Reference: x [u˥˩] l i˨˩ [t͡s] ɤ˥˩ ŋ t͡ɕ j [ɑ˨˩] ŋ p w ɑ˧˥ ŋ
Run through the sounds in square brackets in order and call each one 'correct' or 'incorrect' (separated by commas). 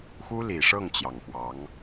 incorrect, incorrect, correct